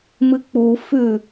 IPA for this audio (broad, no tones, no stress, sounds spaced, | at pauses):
m ɨ k͡p u f ʉ